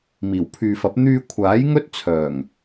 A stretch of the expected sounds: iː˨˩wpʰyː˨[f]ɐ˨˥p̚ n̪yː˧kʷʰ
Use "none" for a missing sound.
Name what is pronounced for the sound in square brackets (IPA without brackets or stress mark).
f